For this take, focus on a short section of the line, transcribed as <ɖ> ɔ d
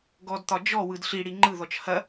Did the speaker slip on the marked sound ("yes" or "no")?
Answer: yes